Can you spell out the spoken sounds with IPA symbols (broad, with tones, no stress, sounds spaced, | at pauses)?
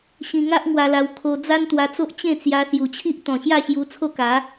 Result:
ɕ ĩ˧ ŋ a˦ ʔ ŋ w a˧ l a˧ w kʰ o˧ d͡z a˦ n t̪ w a˧ t͡s o˦ ʔ t͡ɕ ẽ˥˧ t͡s j a˧ s j u˨˩ t͡ɕʰ i˦ ʔ t̪ ɔ̃˨˩ ɕ j a˥˧ ɕ j u˧ t͡sʰ o˥˧ k a˨˦